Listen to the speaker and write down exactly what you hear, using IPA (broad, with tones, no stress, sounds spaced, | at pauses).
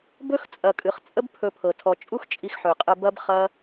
b ɵ˦ x t͡sʼ ɐ˨ kʼ ɨ˨ χ t͡sʼ ə˦ b pʰ ɵ˧ pʰ ɤ˨ tʰ ɔ˨ t͡ʃʼ u˦ x t͡ʃʼ i˧ x ħ ɵ˨ qʼ ə˧ b ɐ˦ b χ ɐ˦